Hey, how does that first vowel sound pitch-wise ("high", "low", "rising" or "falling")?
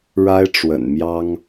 high